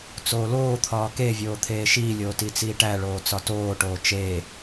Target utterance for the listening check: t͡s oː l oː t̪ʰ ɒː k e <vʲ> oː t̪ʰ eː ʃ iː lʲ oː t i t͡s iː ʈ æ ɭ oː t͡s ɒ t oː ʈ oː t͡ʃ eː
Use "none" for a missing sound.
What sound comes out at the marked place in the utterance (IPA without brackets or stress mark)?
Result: vʲ